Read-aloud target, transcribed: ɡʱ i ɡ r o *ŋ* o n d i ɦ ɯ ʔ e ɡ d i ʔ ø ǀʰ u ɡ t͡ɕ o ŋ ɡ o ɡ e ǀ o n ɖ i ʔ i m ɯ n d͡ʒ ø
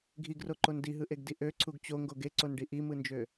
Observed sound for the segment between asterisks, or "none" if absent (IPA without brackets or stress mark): ǃ